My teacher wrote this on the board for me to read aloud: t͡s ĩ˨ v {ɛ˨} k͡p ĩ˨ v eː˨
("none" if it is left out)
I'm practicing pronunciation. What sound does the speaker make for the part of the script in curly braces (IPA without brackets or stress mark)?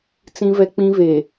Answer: ɛ˨